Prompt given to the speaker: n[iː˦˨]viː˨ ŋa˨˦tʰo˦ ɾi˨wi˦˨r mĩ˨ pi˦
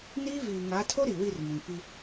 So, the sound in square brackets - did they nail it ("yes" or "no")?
no